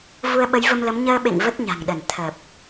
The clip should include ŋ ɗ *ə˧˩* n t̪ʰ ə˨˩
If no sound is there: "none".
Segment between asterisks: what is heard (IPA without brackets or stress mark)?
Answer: ə˧˩